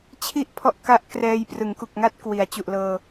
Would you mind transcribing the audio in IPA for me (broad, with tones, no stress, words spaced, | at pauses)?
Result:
t͡ɕʰi˥˩ʔpʰɔ˦˥ʔ ka˦˥ʔkrɛː˧jprɯ˩˦ŋ ku˨˩k̚ŋa˦˥t̚ kwi˩˦a̯t͡ɕu˨˩ʔlɤː˧